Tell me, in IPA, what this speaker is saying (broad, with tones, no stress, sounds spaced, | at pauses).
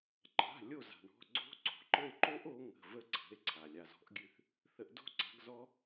ǃ a̤˩˧˩ lʲ o˦˨ z a̤˩ ɳ ɔ̤˩˧˩ ɡ͡ǀ o̤˦˥ ǀ o̤˩ ǃ ə˦˨ e̯ ǃ o˦˥ ʔ o˨˦ ŋ ə̤˩˧˩ v ə˦˥ ǀʰ ə̤˩˧˩ e̯ ǀʰ a˩ lʲ a˩ z ɔ̤˨˦ ʔ ɡʲ ʉ˦˨ θ | θ ə˨˦ ʔ d o̤˦˥ ǀ a̤˨˦ ɡ z ɔ˦˥